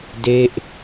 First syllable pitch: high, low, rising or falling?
falling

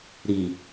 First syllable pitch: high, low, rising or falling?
low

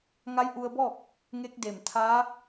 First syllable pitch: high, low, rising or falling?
rising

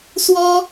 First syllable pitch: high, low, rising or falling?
high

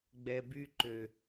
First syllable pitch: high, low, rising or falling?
low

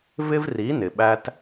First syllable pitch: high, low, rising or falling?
high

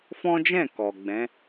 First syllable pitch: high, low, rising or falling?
high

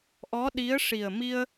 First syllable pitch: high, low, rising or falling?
rising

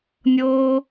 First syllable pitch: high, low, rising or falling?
high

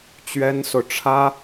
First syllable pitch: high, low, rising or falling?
high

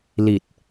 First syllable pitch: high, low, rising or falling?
low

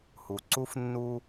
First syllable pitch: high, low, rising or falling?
low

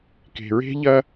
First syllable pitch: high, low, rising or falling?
low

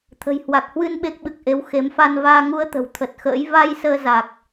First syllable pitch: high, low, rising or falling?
low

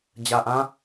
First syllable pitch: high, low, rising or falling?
low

